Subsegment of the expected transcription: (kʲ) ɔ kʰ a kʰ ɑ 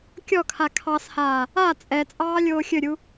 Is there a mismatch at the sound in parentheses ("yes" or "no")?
no